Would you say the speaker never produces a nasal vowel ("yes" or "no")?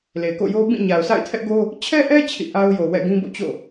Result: no